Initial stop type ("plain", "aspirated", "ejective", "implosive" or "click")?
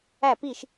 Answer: plain